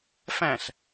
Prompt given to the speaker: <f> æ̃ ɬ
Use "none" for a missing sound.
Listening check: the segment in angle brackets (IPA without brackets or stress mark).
f